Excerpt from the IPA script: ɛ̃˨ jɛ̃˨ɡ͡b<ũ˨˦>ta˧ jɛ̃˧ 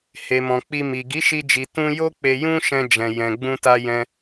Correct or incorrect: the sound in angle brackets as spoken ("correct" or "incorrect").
incorrect